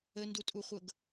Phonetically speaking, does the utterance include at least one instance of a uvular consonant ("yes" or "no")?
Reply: yes